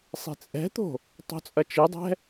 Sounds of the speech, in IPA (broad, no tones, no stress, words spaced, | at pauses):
sˤe̤t͡sʼɛ̤t̪o̤ | tˤo̤t͡sʼɐt͡ʃɨdˤɛ̤